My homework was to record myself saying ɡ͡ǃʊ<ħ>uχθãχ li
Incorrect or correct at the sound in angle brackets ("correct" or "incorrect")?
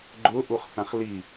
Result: incorrect